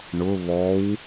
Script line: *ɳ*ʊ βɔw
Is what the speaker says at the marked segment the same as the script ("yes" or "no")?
yes